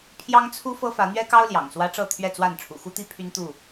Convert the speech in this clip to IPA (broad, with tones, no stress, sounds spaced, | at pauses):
pʰ j ɑ˦ ŋ t͡sʰ u˦ f ɤ˦ f ä˨˦ n̪ ɥ ɛ˦ k ɑ˦ ʊ̯ l j ɑ̰˨˩ ŋ s w ä˦ ʈ͡ʂ ɤ˥˨ t̪ʰ ɥ ɛ˥˨ t͡s w a˥˨ n ʈ͡ʂʰ ṵ˨˩ x u˦ t̪ i˥˨ pʰ y˦ n t̪ u˥˨